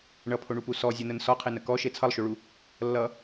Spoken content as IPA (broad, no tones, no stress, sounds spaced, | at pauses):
ɳ ʌ pʰ o ɳ u p u s ɔ zʲ ʌ n ə n s ɔ qʰ e n ə k ɔ ʃ e t͡sʰ ʌ lˠ ʃ o ɭ u | lː ʌ